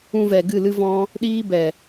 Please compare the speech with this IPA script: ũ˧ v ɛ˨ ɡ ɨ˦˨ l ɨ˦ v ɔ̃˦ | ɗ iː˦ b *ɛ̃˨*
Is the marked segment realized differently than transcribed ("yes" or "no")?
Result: yes